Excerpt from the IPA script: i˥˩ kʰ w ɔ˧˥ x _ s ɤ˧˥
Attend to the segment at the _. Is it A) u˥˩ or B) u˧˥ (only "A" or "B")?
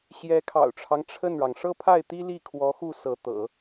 A